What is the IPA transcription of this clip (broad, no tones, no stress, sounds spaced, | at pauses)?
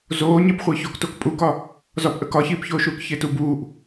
z oː ɲ e p χʷ əː ç o k t o k pʼ u k ɒ | z ɒ p ʔ ə k ɒ ç iː p ç oː ʃ uː k ç e t u b uː ʔ